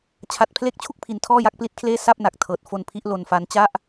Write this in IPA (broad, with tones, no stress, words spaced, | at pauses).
t͡ɕʰa˨˩t̚pʰle˦˥k̚t͡ɕʰu˥˩k̚ pʰi˨˩ntʰɔː˥˩ja˦˥k̚ pli˦˥t̚kʰleː˥˩ sa˥˩p̚na˨˩k̚ tʰɤː˨˩t̚fo˧npʰi˦˥ʔ lo˧nfa˦˥n t͡ɕa˥˩ʔ